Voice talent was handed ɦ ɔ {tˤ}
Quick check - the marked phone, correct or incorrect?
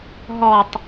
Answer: correct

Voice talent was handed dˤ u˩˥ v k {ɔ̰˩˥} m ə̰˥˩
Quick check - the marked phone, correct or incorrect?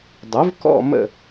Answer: incorrect: ɔ̰˥˧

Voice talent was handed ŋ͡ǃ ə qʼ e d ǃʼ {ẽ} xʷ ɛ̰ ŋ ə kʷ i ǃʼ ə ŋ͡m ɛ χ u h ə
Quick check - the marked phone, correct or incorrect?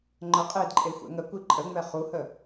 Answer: incorrect: e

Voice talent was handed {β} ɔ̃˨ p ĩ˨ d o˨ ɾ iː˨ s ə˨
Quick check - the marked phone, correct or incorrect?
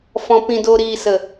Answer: incorrect: f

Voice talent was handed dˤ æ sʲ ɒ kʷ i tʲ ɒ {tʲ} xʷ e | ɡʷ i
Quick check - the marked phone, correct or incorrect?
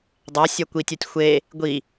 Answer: correct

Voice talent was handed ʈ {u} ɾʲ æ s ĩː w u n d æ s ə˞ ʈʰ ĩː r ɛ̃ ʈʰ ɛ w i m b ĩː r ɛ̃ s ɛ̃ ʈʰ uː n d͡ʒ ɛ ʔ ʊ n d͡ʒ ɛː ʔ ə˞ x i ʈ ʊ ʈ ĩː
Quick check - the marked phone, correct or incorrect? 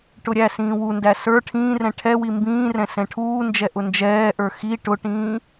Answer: incorrect: ʊ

